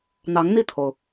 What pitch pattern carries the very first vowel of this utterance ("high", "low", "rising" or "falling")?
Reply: rising